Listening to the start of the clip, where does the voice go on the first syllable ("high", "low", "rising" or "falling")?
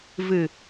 low